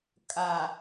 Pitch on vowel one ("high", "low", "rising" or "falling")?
low